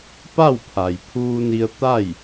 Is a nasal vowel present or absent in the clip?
absent